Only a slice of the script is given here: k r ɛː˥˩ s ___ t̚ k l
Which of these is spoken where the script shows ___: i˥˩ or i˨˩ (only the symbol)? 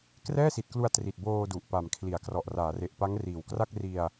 i˨˩